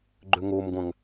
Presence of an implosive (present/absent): absent